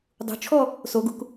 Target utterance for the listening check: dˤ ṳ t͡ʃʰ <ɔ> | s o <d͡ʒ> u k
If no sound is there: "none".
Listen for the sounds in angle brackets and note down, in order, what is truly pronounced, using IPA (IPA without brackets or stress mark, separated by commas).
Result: ɔ, ɡ